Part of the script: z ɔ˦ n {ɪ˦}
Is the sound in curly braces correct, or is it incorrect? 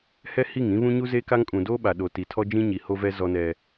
incorrect